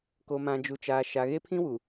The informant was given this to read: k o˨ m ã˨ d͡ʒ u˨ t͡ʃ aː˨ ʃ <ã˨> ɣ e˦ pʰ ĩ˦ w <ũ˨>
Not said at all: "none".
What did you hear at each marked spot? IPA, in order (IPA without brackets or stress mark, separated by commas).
a˨, u˨